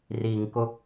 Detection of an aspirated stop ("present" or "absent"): absent